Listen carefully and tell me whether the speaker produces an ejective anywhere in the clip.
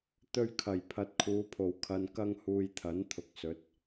no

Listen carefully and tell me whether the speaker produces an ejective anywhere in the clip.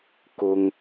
no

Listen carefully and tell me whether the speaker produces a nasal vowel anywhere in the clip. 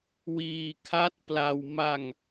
no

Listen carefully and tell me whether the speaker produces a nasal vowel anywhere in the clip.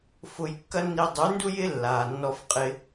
no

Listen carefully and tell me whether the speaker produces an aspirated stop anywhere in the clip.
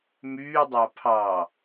yes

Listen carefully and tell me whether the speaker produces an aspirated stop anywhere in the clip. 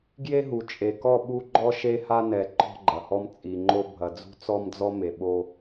no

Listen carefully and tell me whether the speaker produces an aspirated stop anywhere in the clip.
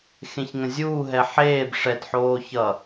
no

